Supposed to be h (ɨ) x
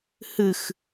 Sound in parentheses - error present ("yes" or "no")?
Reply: no